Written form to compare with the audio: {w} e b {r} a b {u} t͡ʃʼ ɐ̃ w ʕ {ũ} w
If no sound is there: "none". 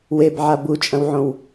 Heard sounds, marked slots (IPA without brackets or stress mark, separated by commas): w, ʕ, u, õ